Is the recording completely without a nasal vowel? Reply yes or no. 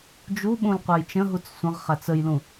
no